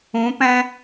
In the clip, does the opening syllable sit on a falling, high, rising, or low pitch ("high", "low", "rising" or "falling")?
rising